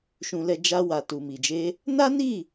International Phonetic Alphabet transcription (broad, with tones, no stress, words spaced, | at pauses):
ʃũ˧lɛ˧ d͡ʒa˧wa˨ tu˨mi˨d͡ʒe˧ | na˦ni˦˨